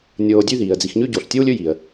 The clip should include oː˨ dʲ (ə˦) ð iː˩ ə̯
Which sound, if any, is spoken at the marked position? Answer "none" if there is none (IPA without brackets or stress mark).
ʉ˦